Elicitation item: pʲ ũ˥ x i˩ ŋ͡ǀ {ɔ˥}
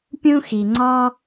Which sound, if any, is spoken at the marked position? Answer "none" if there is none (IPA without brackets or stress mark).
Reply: ɔ˥